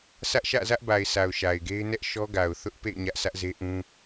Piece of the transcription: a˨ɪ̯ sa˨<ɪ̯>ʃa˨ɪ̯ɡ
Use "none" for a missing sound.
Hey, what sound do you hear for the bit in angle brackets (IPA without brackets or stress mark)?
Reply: ʊ̯